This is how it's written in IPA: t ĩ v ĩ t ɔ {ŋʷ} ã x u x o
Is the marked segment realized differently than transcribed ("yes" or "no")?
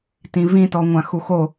no